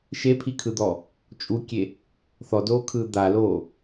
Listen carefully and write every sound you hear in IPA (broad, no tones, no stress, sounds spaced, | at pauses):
ʃ e pʰ i kʰ ɯ d̪ ɔ | t͡ʃʼ u kʲ e | θ ɔ d oː kʰ ɯː d̪ a l oː